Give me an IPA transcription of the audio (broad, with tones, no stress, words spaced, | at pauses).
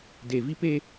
de˨vi˦ pe˦